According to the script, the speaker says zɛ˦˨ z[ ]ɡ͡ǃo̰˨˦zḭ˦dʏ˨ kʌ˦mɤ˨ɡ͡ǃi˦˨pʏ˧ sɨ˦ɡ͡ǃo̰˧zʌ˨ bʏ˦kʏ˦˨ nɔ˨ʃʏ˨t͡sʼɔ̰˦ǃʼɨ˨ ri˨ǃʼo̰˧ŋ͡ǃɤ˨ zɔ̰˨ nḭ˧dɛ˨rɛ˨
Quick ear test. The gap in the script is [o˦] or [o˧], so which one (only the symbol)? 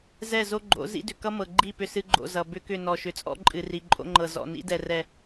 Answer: o˦